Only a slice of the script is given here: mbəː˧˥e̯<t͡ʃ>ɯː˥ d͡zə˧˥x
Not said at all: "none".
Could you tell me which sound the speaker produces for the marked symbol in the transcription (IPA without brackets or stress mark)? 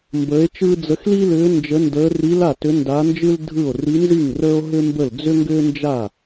t͡ʃ